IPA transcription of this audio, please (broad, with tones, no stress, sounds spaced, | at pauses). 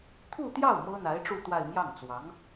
t̪ʰ u˥˧ t̪ j ɑ˥˩ ʊ̯ m ɤ˥ n̪ a˧˥ ɪ̯ ʈ͡ʂ u˥˧ t̪ w a˥˧ ɪ̯ m j ɑ˥˩ ŋ t͡s w ɑ˧˥ ŋ